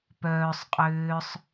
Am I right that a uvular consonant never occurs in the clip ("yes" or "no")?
no